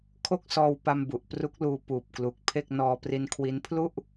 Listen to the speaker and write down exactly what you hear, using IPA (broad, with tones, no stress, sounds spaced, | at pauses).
kʰ o˥˩ k̚ s ɔː˧ w p a˧ m b u˨˩ ʔ p r u˦˥ k̚ l uː˧ p uː˨˩ p̚ k l u˨˩ k̚ pʰ e˥˩ k̚ n ɔː˧ p r i˧ n kʰ w i˦˥ n pʰ l u˥˩ ʔ